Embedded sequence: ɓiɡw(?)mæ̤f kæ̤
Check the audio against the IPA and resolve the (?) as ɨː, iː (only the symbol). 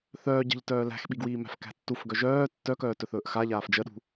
iː